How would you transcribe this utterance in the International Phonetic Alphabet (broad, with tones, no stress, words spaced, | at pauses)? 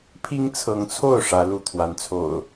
pʰi˦ŋt͡sʰɤ˨˦ŋt͡sʰo˥˨ʊ̯ ʂä˨˦ lu˥˨t̪ʰwa˨˦nt͡sʰo̰˨˩ʊ̯